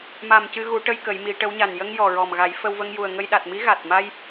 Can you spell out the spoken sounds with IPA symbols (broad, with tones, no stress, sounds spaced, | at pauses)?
m a˨˩ m c ɨ˧ ɣ u˨˩˦ ʈ ə˧ j k ə˨˩˦ j m i˨˩˦ ʈ ə˧˥ w ɲ a˨˩ n j ə˧ ŋ j ɔ˨˩ ɹ ɔ˨˩ m ɣ a˨˩˦ j f ə˧ w v ə˧ ŋ j u˨˩ ə̯ ŋ ə˧ j ɗ a˨˩ t̚ m i˧˥ ɣ a˨˩ t̚ m a˧ j